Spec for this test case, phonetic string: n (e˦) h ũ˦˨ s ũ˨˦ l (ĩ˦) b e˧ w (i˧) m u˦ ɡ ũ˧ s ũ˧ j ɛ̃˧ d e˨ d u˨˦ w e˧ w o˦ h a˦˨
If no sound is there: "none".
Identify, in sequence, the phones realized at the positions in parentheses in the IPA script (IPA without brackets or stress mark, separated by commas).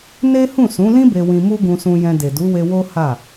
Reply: e˦, ĩ˦, ĩ˧